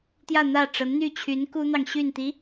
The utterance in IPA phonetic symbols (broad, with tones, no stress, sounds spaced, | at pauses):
t̪ j ä˥˧ n̪ ä˥˩ ʈ͡ʂ ə˧˥ n n̪ y˥˩ t͡ɕʰ y˧˥ n k u˥ n̪ ɑ˨ ŋ ɕ y˥˩ n t̪ i˧˥